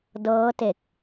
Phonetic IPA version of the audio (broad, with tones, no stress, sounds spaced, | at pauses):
d ɤː˦˥ t e˨˩ k̚